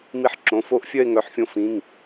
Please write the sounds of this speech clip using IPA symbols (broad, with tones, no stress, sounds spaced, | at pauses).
m i˧ ħ ǁ õ˩˧˩ f o˥˧ ʔ fʲ œ˥˧ e̯ ŋ œ˩˧˩ ħ fʲ õ˧ f ĩ˩˧˩ ŋ